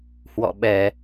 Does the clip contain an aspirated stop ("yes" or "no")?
no